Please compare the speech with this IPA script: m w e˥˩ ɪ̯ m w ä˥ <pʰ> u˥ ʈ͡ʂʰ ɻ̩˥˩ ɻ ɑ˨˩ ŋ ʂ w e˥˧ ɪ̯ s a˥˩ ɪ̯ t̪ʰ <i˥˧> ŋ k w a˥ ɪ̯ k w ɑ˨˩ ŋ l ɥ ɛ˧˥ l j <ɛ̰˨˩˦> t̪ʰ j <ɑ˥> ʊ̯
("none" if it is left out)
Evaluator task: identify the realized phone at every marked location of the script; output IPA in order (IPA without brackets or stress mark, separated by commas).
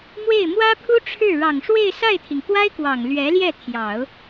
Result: pʰ, i˩, ɛ˥˩, ɑ˨˩˦